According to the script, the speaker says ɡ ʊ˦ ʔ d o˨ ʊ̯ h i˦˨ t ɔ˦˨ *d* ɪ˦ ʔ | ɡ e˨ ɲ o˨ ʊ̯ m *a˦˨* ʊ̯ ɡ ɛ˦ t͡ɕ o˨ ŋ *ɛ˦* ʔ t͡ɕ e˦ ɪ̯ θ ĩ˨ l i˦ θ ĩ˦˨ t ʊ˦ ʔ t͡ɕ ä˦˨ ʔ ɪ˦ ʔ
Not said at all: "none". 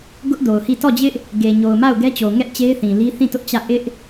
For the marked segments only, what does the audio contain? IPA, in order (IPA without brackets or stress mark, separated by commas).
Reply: d͡ʑ, a˦˨, ɛ˦